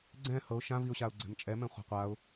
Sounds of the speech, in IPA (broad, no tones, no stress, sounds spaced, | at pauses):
ɡ͡ǀ ɛ̃ h ɤ ʊ̯ ʃ ã v i ʊ̯ ɕ a ʊ̯ ɡ͡ǀ ɛ̤ m t͡ʃʼ ɛ m ɛ̃ χʷ a̤ qʷ a ʊ̯